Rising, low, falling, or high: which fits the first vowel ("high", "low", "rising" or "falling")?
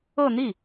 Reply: falling